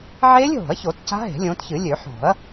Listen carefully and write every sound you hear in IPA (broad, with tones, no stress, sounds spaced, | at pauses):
ʕ eː˦˥ lʲ ɦ o̤˨˩˦ ɐ̯ ç o˨˩˦ t c a̤˦˥ ɦ e̤˨˩˦ lʲ õː˨˦ t ç ɨ˨˩˦ lʲ ø˨˩˦ ħ o̤˨˩˦ ɐ̯